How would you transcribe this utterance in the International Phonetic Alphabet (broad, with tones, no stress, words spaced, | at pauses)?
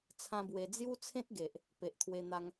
t͡sʰã˦bwe˧ d͡zju˦t͡sʰẽ˦t̚ɡe˨ʔ | pe˨ʔt̪ʰwe˧ n̪a˦ŋ